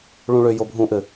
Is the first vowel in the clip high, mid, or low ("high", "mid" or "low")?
high